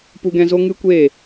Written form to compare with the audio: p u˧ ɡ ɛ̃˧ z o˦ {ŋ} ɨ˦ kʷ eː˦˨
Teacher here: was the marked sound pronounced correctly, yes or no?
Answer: yes